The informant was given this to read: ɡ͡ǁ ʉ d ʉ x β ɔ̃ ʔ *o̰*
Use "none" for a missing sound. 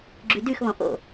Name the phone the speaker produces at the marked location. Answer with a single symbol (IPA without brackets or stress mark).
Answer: o̰